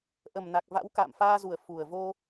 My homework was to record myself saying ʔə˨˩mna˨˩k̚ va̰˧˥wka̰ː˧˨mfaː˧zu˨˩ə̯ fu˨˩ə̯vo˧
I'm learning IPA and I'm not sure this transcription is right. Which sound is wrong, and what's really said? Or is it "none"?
none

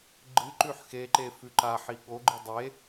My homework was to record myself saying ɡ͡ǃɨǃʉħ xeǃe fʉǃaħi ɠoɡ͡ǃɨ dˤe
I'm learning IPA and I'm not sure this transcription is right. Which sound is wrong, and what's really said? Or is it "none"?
none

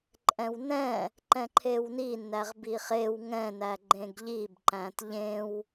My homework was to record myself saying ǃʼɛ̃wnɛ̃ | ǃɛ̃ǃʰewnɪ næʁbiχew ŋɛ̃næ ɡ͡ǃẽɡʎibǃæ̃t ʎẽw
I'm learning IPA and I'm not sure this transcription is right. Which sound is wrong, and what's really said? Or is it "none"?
ɪ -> i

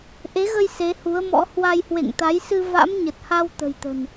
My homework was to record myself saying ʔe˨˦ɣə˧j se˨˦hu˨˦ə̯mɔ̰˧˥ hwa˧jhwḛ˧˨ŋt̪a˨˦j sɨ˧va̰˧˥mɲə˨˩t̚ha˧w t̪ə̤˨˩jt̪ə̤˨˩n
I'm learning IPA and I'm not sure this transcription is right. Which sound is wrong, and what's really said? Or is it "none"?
none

